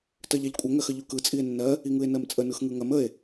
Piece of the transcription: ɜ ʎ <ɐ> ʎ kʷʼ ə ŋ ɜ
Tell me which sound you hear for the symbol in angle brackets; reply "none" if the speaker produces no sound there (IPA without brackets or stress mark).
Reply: a